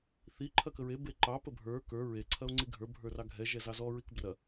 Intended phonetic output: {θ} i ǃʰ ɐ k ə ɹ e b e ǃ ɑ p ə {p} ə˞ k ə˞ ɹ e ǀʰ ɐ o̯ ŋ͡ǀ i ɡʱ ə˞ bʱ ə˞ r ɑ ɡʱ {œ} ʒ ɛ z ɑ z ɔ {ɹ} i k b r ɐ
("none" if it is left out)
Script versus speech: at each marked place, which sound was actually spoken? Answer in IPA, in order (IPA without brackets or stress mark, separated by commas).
θ, bʱ, ɛ, ɹ